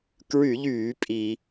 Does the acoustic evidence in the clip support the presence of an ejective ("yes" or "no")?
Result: yes